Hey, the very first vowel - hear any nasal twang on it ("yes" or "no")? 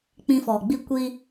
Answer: yes